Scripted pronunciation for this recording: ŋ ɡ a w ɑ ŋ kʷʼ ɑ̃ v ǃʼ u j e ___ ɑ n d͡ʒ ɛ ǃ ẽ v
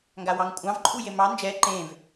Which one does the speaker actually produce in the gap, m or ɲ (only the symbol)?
m